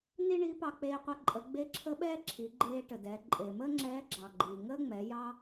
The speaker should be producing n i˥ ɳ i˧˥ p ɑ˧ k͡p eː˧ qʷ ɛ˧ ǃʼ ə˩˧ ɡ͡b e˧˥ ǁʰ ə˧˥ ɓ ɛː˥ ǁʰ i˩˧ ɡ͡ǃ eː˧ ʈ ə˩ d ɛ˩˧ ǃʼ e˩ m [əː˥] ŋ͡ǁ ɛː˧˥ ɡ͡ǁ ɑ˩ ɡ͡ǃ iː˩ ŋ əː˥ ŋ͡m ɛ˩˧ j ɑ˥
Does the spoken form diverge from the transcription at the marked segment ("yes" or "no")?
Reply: no